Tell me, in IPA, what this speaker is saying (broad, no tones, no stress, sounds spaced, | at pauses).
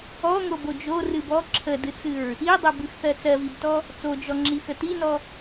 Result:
ɔ ŋ o b o d͡ʒ o r ɨ b ɔ ǁʰ ə d ɨ t͡s ɨ ɹ | i dˤ ɜ b ɨ x θ ɜ t͡s ɜ v i b t ɔ | t͡s o d͡ʒ ɔ ŋ͡ǁ i x ə t i n ɔ